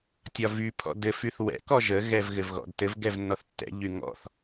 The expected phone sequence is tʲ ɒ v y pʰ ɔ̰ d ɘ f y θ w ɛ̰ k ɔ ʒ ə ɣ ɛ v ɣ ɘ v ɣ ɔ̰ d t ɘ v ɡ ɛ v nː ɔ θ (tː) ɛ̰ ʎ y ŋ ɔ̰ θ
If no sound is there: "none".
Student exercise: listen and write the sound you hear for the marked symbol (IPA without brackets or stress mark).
tː